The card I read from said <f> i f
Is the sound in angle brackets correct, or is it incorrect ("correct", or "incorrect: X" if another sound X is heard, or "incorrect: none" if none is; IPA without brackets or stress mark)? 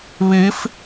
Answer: incorrect: β